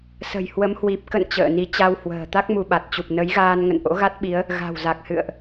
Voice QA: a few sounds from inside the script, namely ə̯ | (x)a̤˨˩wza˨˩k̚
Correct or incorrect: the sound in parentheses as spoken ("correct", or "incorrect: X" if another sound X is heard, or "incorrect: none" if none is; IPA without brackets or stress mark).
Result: incorrect: ɣ